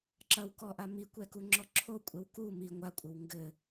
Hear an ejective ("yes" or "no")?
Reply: yes